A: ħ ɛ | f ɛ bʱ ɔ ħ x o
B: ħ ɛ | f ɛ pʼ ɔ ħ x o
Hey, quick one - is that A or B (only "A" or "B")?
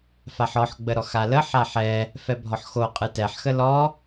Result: A